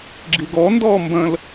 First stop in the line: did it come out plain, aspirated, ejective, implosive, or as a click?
click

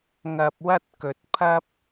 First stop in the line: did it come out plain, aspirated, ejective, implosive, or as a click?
plain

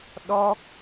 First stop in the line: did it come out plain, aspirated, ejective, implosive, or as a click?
implosive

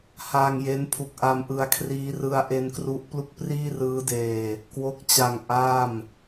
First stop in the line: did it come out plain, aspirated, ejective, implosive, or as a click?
aspirated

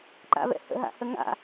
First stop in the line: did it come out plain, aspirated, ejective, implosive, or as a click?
click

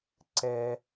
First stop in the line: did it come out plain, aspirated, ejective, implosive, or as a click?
click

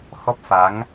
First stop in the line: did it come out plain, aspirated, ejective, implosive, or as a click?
plain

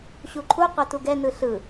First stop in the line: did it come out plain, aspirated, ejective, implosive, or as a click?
click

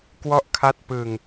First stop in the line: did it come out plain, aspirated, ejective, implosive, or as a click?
plain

